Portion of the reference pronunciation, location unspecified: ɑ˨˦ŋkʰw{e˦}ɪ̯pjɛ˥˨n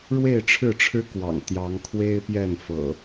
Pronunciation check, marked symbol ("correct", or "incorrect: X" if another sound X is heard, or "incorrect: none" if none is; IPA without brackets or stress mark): correct